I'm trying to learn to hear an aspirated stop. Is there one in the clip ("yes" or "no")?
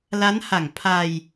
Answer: yes